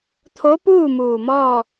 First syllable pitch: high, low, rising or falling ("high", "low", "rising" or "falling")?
rising